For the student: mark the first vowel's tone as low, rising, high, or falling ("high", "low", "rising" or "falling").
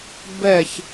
falling